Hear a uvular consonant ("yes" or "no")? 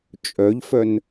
no